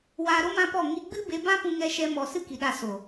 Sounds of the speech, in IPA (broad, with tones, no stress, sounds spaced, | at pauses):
w aː˧ ɾ o˦ m ã˦ p ɔ˦˨ ŋ i˧ ɡ͡b ɨ˦ b e˧ b ã˦ p ũ˦ ŋ ɛ˦ ʃ ɛ˦ m ɔ˧ s ɨ˦ k i˨ ɗ a˧ s o˨